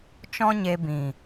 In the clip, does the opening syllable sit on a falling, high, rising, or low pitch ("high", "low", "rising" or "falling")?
high